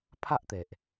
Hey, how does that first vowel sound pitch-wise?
high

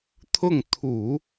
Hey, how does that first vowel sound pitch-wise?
falling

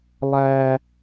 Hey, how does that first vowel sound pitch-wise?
high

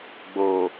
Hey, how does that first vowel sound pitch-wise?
low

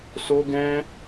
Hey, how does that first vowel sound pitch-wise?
high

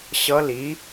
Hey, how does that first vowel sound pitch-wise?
rising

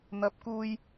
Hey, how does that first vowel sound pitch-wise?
rising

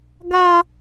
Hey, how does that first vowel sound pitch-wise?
high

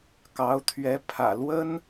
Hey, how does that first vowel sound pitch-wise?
rising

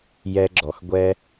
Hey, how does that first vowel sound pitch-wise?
low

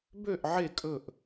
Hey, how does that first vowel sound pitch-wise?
falling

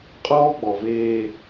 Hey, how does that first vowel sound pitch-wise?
high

